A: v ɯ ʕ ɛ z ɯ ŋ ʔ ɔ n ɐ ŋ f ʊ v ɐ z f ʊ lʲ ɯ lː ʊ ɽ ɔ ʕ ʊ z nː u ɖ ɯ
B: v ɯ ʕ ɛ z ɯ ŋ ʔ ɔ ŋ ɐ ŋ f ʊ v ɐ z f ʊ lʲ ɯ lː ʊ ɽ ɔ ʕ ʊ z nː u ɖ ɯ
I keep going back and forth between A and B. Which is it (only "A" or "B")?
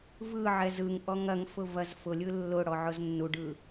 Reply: B